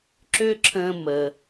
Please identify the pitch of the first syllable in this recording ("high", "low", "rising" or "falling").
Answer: high